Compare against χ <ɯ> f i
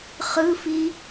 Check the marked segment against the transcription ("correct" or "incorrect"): correct